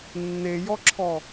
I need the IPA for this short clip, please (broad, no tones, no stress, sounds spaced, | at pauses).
nː e j ɔ ǁʰ ɔ